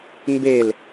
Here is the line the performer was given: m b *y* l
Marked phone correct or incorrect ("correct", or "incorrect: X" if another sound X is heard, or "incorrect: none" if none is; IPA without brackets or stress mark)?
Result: incorrect: e